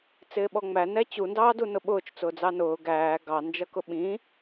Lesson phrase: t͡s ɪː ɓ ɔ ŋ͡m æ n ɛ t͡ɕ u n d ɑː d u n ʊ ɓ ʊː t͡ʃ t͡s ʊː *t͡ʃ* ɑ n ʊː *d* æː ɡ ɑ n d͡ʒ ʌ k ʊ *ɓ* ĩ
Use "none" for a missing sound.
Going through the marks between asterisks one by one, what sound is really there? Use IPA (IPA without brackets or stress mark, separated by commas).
d͡z, ɡ, ɓ